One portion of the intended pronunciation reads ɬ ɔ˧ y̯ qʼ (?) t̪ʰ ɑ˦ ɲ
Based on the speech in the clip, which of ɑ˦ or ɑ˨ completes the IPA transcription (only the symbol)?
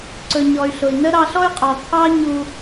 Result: ɑ˨